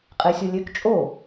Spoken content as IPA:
qʼ e sʲ o lʲ ø k t͡ʃʼ o

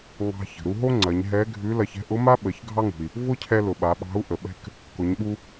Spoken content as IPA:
ŋ ɑ̤˧ ç ə̤˩ ɾ u˧ ɦ o˥ ŋ͡ǀ ɐ˩˧ ɲ ɦ ɛ˧˥ ɡʱ ʉ˧˥ l ɐ˧ ç ɛ̤˥ ʔ ʊ˧˥ m a˥ ɓ ə˩˧ ç ɡʱ ɑ˥ ŋ ṳ˩ i̯ | v ʊ˥ cʰ ɛ˧ l ʊ˩ ɓ a˩˧ ɓ ɑ̤˧˥ u̯ ʔ ə˩ ɓ ɛ̤˧ k | k ʊ˩˧ ɲ ɓ u˧

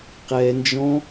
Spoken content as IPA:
q ɛ n d͡ʒ ɔ̃

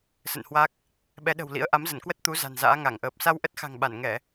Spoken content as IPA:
s ə̰˧˨ n h w a˦˥ k̚ | ɓ ɛ˨˦ ɗ ə̤˨˩ w l ḭ˧˥ ə̯ ʔ a˨˦ m z ə˧˩ n k w ə˦˥ t̚ t̪ u˨˦ z a̤˨˩ n z a̰ː˧˥ ŋ a˧˩ ŋ ʔ əː˨˩ p̚ s a˧ w ʔ ə˦˥ t̚ x a̤˨˩ ŋ ɓ a˧˩ n ŋ ɛ˧˩˨

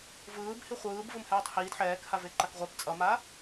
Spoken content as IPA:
v ɯː b h i χʷ ɯː b v ɯ m h ɛː tˤ h iː d ħ ɛː k h a v e ǃ a k ʁʷ ɛ p t͡sʼ ʌ m a

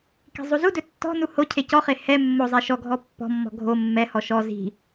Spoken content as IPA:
k i̤ zˤ u z u d ɵ tː ɔ̤ n u h o cʰ e c ɔ χ e h ɛ mː o zˤ e ʃ ɔ ɡʱ ɔ pː ɔ̤ mː ɔ̤ ɡʱ o mː ɛ h ɔ ʃ ɔ z i̤

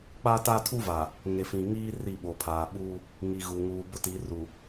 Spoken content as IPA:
k͡p a˦ t a˦ tʰ u˦ v aː˨ | ŋ e˨ f ĩ˨ ŋ iː˦ r i˦˨ ɓ o˨ pʰ aː˨ ɓ uː˦ | ŋ i˨ ɣ u˨ ŋ uː˨ b ʊ˦ t i˨˦ r u˨

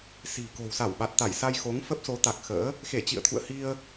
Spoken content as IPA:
s i̤˨˩ k o̤˨˩ w s a˧˩ w ɓ a˨˩ t̚ t̪ a˧˩ j s a˧ j x o˨˦ ŋ f ə˦˥ p̚ s o˨˦ t̪ a˨˩ k̚ x ə̰ː˧˥ | x e˧˩ t͡ɕ ḭ˧˨ ə̯ t̪ʰ ṵ˧˨ ə̯ h i˧ ə̯

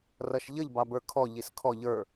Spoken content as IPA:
r ʌ ʃ ʎ ə ʎ b ɑ b ə˞ kʰ ɔ ʎ i s kʰ ɔ ʎ ə˞

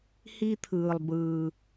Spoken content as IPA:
h i˦ t̪ʰ ɯː˨ lˠ b ɯː˨

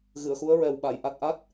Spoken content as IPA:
ɣ ɨ˨˩˨ ə̯ x u˧˥ ə̯ ɹ ɛ˨˩ w ɓ a˨˩˨ j ʔ a˨˩ t̚ ʔ a˦˥ t̚

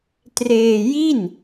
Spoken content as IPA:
t r eː˧ j i˥˩ n

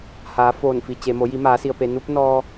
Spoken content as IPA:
h aː˩˧ f oː˧˩ n f i˩ t͡ɕ e˩ m o˩˧ j i˩˧ m aː˩˧ s i˩ ə̯ p e˩ n u˧˥ p̚ n ɔː˧

